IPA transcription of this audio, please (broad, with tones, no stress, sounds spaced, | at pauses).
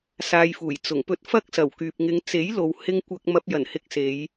s aː˧ j f uː˨˩ j t͡s ʊ˨˩ ŋ p ɵ˥ t̚ f ɐ˥ k̚ s ɐ˨˩ w k yː˨ p̚ ŋ ɪ˨˧ ŋ t͡s e˨˥ j l o˨ w h ɪ˧ ŋ kʷ ɐ˧ k̚ m ɐ˧ p̚ j ɐ˨˩ n h ɪ˧ k̚ s e˨˧ j